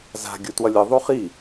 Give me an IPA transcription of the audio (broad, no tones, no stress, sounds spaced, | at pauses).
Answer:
z a̤ ɡʲ u t w ʌ lʲ ɯ ðˤ u χ i